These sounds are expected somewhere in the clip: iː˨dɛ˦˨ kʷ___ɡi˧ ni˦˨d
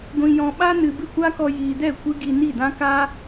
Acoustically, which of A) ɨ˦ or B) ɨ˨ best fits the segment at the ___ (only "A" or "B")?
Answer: A